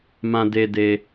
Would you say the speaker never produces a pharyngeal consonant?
yes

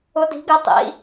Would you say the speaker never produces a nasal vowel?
yes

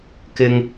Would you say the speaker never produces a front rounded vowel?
yes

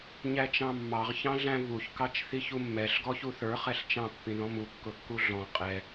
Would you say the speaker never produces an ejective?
no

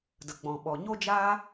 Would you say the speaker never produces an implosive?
no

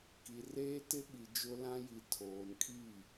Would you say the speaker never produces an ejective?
no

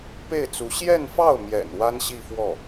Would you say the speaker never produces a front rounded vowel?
yes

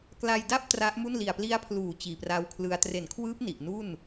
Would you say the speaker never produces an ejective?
yes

